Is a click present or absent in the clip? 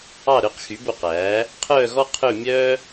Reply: absent